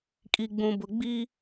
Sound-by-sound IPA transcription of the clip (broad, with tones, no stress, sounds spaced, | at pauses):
kʼ i˨ ɡ͡b ũ˨ b ʊ˨ ɡ͡b i˦